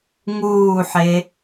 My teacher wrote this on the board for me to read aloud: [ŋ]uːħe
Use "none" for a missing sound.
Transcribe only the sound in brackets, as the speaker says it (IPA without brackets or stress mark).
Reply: ŋ